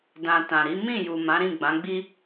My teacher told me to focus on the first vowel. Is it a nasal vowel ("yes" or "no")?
yes